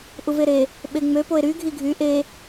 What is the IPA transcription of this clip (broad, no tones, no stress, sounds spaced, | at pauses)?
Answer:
ʔ u v e ɾ e | ɓ e ŋ͡m ø p o e̯ ɾ y ɡʱ i ɡʱ y ʔ e